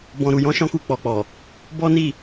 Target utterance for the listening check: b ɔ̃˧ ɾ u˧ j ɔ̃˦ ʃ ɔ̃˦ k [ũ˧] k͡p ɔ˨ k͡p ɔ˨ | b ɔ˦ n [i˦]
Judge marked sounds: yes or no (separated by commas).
no, no